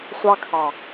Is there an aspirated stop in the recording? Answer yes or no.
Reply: yes